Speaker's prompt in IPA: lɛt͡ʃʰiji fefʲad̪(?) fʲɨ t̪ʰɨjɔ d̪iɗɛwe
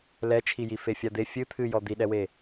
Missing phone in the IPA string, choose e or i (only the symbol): e